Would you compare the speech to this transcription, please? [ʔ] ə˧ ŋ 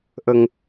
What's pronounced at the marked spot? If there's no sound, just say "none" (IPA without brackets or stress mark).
ʔ